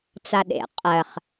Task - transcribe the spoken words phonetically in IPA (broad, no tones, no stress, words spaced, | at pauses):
t͡saɗḛ qʼɜχ